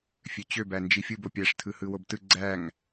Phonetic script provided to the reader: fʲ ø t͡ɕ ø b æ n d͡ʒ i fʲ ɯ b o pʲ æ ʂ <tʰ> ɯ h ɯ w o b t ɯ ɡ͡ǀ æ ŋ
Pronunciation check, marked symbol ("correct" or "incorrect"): correct